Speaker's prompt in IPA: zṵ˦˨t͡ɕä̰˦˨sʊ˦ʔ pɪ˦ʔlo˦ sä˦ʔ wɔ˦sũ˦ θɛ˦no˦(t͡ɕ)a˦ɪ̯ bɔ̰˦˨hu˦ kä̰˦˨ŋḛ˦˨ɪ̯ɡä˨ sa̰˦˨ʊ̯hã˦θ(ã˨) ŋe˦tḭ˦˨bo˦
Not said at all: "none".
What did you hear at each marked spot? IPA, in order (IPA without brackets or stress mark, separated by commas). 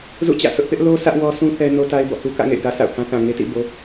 t, ã˨